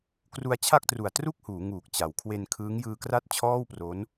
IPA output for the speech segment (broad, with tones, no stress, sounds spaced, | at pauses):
k r u˧ a̯ t͡ɕʰ a˥˩ k̚ t r u˨˩ a̯ t r u˥˩ k̚ h uː˩˦ ŋ uː˨˩ k̚ t͡ɕ a˩˦ w kʰ w e˧ n kʰ ɯː˦˥ ŋ j ɯː˧ k r a˥˩ t̚ t͡ɕʰ ɔː˥˩ w p r o˦˥ n